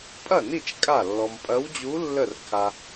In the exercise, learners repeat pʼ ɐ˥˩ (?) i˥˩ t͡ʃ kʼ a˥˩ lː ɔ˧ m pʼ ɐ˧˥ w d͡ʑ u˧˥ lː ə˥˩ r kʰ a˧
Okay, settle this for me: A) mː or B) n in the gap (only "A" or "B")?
B